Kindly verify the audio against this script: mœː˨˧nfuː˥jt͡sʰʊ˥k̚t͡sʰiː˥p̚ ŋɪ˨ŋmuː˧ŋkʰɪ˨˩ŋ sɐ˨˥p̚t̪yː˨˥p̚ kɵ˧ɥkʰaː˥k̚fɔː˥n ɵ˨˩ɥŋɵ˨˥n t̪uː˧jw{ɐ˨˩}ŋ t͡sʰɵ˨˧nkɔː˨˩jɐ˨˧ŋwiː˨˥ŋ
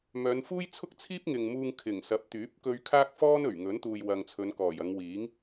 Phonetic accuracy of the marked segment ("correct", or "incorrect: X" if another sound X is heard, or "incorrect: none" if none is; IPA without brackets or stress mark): incorrect: ɐ˧